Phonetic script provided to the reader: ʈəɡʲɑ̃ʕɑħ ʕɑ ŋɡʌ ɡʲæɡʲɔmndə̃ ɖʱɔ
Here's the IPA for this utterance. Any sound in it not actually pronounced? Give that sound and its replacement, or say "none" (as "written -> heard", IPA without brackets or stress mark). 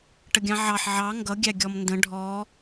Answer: none